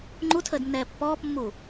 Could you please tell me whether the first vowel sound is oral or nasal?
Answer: oral